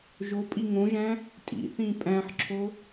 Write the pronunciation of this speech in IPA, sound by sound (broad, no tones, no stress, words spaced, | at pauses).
ʒopʼi ŋõʒæ̃ | tʼḭθĩː pʼæ̃ħǁʰo